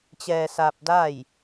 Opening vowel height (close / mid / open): mid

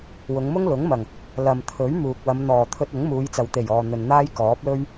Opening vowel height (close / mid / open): close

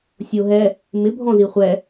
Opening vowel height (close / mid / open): mid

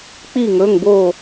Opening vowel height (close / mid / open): close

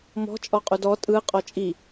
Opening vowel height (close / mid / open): mid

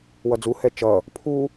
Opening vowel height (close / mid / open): mid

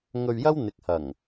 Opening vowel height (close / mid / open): mid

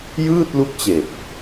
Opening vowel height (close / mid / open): close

